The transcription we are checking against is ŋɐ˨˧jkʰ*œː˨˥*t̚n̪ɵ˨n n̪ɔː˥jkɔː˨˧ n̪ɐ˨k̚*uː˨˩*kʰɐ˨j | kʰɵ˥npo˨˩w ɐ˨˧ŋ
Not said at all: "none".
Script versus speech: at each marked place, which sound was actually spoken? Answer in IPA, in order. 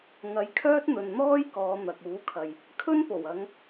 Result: œː˥, uː˨˥

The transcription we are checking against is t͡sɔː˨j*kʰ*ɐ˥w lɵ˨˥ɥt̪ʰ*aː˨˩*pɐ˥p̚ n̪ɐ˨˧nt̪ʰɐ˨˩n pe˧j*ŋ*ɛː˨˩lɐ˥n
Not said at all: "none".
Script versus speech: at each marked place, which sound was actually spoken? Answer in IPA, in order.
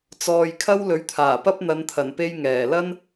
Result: kʰ, aː˨˩, ŋ

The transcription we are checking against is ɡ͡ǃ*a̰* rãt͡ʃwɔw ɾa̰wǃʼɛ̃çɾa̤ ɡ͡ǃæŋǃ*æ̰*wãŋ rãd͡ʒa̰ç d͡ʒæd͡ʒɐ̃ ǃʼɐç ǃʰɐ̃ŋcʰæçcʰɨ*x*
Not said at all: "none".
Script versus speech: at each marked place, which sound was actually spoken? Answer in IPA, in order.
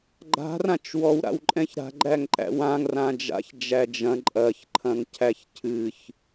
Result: a̤, æ̰, ç

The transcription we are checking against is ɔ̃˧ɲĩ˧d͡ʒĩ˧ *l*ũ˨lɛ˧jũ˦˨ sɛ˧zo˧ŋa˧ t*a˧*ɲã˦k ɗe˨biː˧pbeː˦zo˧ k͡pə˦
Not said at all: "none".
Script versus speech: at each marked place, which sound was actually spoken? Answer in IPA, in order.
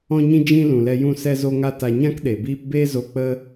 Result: l, a˧

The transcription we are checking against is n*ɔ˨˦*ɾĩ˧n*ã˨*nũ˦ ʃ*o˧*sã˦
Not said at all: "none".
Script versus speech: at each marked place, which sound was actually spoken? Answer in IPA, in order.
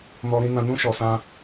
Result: ɔ˧, ã˧, ɔ˧

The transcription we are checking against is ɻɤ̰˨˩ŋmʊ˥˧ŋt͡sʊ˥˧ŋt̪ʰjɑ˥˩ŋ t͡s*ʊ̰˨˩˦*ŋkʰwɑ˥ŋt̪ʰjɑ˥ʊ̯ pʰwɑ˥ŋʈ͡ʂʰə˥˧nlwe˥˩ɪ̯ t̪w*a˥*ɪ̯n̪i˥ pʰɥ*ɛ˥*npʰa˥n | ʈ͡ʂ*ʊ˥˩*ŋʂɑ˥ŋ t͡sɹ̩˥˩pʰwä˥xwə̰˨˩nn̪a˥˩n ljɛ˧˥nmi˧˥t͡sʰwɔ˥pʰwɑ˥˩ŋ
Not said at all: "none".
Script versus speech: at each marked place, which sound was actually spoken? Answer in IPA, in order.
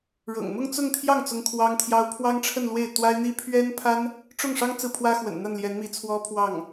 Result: ʊ˥, a˥, ɛ˥, ʊ˥˩

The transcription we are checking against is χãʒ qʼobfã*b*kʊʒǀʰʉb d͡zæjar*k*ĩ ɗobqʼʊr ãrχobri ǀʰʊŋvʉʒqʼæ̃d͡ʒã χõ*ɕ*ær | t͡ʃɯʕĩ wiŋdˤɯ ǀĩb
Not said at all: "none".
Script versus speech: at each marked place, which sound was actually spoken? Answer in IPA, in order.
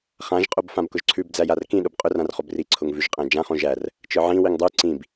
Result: b, k, ʒ

